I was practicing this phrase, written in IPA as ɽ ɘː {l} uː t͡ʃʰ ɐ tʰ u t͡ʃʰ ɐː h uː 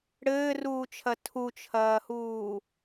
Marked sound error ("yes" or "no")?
yes